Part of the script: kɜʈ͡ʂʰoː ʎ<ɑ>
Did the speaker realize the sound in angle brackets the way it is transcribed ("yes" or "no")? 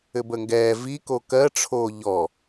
no